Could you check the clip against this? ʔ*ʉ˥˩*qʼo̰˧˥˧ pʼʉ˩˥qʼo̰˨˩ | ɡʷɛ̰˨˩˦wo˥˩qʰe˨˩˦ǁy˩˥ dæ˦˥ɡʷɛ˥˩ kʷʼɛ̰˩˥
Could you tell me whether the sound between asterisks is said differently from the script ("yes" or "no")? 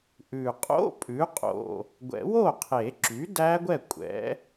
yes